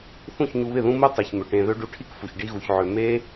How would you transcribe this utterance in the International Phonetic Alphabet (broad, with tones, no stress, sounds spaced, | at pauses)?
θ ũ˦˨ ç ɲ u˧ β ɪ˦˨ ð ũ˦ m u˦ tˤ i˨ ç m ø˨ ʈ ẽ˧ ð ø˦ ɖ u˧ ʈʰ i˦ k f u˨ ç ɖ i˦ ɣ u˧ ç ʕ ø˧ m e˦